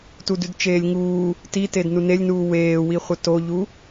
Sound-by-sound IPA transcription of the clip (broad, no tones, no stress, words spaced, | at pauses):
tudʉdt͡ʃeːlʲŋuː | titednu nelʲnuː weːwiχʷə toʎu